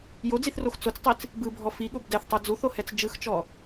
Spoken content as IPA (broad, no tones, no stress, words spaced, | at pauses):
jod͡ziθrox t͡sot͡stˤit͡s | bɯbʱɔ fiɠob dɛθtˤo d͡zuθohɛt͡s d͡ʒɯxt͡ʃɔ